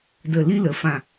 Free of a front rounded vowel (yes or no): yes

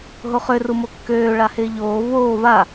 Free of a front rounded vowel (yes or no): no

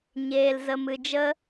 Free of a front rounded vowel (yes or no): yes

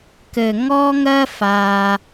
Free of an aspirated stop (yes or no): yes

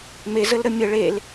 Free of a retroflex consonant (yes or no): no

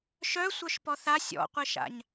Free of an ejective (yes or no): yes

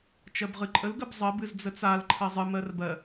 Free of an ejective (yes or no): no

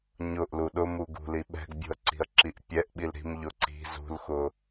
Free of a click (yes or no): no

